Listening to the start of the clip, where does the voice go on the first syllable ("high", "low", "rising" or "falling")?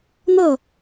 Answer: falling